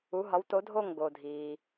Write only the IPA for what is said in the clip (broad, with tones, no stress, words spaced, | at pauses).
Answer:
u˨˥ɦɒ˨˥w to˨˥dʱo˥˩ŋ ɡo˩dʱiː˩